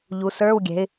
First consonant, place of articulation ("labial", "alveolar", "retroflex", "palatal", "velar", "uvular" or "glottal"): palatal